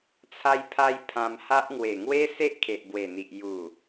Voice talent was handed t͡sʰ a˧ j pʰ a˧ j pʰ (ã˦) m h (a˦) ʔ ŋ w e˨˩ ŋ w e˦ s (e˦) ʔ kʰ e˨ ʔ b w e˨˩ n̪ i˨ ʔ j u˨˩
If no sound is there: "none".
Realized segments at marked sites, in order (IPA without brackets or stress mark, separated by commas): ã˧, a˦, e˦